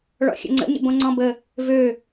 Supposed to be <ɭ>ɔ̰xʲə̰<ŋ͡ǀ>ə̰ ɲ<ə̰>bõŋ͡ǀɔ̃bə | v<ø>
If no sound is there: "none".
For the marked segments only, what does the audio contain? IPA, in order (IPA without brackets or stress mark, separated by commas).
ɭ, ŋ͡ǀ, ə̰, ø